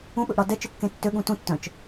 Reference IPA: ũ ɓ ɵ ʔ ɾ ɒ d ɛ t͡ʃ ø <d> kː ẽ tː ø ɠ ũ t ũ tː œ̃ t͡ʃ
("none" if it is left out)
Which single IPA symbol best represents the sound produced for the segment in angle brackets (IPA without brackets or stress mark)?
none